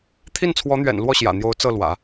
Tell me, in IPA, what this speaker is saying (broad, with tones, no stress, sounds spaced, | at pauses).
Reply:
t̪ʰ i˥˩ n t͡sʰ w ɔ˧˥ n̪ ɥ ɛ̰˨˩ n l w ɔ˥˩ ɕ j ä̰˨˩ n̪ j o˧˥ ʊ̯ t͡s ɤ˥˩ l w ä̰˨˩˦